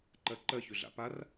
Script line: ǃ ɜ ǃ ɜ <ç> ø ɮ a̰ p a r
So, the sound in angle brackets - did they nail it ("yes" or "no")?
yes